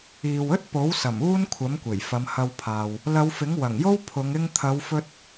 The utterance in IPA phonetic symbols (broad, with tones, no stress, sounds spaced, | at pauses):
iː˨ w ɵ˥ t̚ p o˨˥ w s ɐ˨˩ m uː˥ n kʷʰ ɐ˨˥ m kʷ e˨˩ j f ɐ˨˧ m h ɐ˧ w pʰ aː˨ w | l ɐ˨˧ w f ɪ˨˥ ŋ w ɐ˨˩ ŋ j o˥ w pʰ ʊ˨˧ ŋ ɪ˧ ŋ t̪ʰ ɐ˨˧ w f ɵ˧ t̚